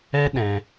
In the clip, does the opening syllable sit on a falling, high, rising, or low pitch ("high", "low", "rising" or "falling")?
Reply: high